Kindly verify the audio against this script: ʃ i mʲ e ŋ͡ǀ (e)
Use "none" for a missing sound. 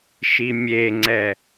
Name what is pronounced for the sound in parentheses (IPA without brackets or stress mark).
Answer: ɛ